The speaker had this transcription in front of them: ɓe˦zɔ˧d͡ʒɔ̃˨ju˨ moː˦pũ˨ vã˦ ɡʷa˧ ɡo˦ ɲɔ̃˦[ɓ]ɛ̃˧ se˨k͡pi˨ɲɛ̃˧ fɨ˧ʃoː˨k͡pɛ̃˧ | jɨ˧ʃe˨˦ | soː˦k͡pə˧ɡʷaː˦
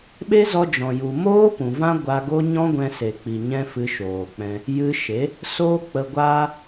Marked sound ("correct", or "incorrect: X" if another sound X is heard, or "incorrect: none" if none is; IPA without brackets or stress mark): incorrect: ɡʷ